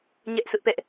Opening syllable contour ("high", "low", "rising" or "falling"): high